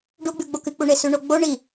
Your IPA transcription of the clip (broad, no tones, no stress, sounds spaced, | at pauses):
ɖ u ɡ͡b ʉ ɡ͡b o k ɨ k͡p u ɳ e s ʉ ɳ o ɡ͡b o ɳ i